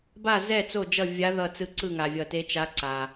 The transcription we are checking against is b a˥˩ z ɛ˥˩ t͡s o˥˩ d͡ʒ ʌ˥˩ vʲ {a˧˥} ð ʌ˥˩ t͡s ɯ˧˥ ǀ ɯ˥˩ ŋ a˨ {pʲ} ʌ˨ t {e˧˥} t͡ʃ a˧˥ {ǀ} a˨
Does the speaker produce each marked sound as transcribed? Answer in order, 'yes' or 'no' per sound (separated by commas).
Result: yes, no, yes, yes